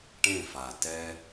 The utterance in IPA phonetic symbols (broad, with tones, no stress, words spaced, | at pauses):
ʈẽ˦˨fa˨ tɛ˦